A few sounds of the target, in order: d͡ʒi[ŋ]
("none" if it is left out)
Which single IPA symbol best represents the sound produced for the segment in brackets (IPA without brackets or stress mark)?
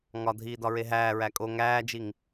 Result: ŋ